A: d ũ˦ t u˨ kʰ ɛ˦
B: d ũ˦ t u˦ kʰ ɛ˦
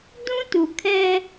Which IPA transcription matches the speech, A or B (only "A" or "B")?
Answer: A